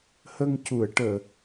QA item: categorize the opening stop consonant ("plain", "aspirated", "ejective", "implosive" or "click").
plain